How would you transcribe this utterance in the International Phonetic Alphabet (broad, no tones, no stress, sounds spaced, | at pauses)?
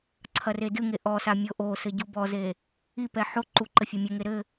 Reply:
ǀʰ ɐ r e d ɨ ŋ e ʔ ɔ s a mʲ o ʔ o s ɘ ɟ u b ɔ z e | i p ɛ ħ o ǃ u ǃ ɘ fʲ ɐ mʲ ɘ ŋ e ɾ ɘ